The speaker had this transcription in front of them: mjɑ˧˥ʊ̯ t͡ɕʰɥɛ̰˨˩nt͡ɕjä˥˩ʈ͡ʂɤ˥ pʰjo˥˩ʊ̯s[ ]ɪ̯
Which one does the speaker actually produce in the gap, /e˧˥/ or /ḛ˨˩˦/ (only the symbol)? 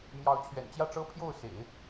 ḛ˨˩˦